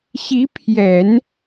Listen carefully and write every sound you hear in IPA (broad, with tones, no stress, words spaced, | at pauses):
ɕi˧˥pʰjɛ˨˩˦n